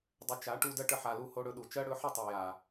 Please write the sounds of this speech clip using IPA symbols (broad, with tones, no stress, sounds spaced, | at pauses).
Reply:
dˤ ə˧ t͡ʃ a˨˦ ʈ u˧ d ɜ˦ ʈ ə˧ ħ a˧ l u˦ h o˦ ɽ ɵ˧ ɗ u˨ t͡ʃ ɜ˦ ɽ ɵ˨˦ ħ ə˦˨ tˤ ɜ˨ j a˨